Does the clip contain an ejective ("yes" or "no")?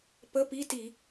no